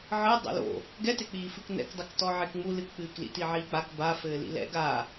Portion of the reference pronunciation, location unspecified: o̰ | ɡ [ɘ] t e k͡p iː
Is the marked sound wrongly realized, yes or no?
yes